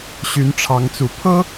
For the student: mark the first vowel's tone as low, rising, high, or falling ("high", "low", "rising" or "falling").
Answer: rising